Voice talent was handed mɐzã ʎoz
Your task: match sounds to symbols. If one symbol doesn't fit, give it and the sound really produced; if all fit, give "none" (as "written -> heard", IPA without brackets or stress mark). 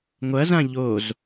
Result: m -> ŋʷ